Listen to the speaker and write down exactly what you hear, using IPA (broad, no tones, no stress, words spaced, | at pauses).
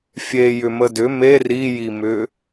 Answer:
fʲe jʏmədʏ me rijimʏ